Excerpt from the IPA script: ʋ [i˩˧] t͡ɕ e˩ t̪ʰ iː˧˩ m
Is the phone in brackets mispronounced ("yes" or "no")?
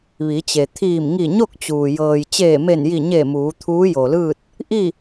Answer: no